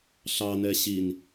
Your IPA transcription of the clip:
ɬ ɑ n ɛ ɕ i n

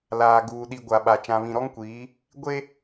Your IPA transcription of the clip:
l aː˨ ɡ uː˨ ɗ i˨ ɡʷ a˨ ɓ a˨ t͡ʃ ã˨ β ĩ˨ ɾ ɔ˦ ŋ kʷ iː˨˦ | ɡʷ e˦

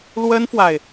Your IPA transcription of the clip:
l w ə˥ n f w a˨ ɪ̯

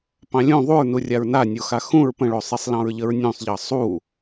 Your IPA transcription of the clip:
p ɑ̃ lʲ ũ ðˤ u ɹ n u rʲ a ɹ n a nʲ o x a x ũ ɹ p ə̃ ɭ o sˤ i sˤ l ɑ̃ ɹ ʎ ə ɹ nʲ ũ sˤ ʎ ɑ sˤ u

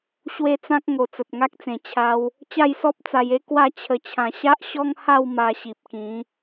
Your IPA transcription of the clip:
ɕ w e˥˧ t͡s ã˦ k̚ ŋ o˨˩ t͡s ə˨ t̚ ŋ a˦ k̚ t͡s ẽ˨˩ t͡ɕʰ a˧ w | t͡ɕ a˥˧ j s ɔ˦ p̚ t͡s a˧ j e˦ k w a˥˧ t͡ɕʰ ə˧ t͡ɕʰ ã˧ ɕ a˦ ʔ ɕ ɔ˦ ŋ h a˥˧ w m a˧ ɕ i˨ p̚ k ĩ˨˦

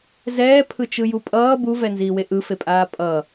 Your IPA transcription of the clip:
z ɛː pʰ ɯ t͡ʃ ɯ j u pʼ ʌː b u v ɛ n z iː w e ʔ ɯ f e pʼ aː pʼ ʌ

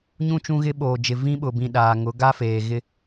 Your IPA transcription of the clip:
ɲ ũ˦ t͡ʃ ũ˦ ɣ ɪ˦ ɓ oː˨ d͡ʒ ɪ˨ v ĩ˦ ɓ ʊ˨ b ĩ˨ ɗ aː˨ ŋ ʊ˨˦ ɡ a˦ f eː˨ ɣ ɪ˦

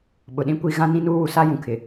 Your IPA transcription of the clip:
ɓ ʊ˨ ɗ ĩ˦ kʷ i˦˨ ɣ ã˦ n ĩ˦ n uː˦ w u˨ s a˦ j ũ˨ kʰ ɪ˨

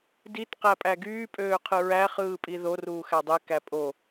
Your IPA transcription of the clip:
d i t q æ pʼ æ ɡ yː pʼ øː qʰ ɯ ɹ æ χ ɯː pʼ i ð o r uː x æ dˤ e k æ pʼ o

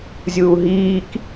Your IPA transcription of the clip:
zʲ uː ɦ iː k

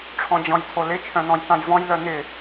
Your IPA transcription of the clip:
ʈ͡ʂʰ ɔ̃ d͡ʑ ɔ̃ j tʰ o l ɪ t͡ʃʰ œ̃ n̪ ɔ̃ j t ã j v ɔ̃ j l œ n̪ ɪ

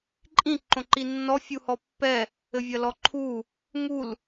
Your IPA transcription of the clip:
ǃʼ ĩ ǃ õ ǃ i nː ɔ fʲ u h ɔ pː ɛ | ɘ vʲ ɐ l ɔ ǃʰ u | ŋ u l

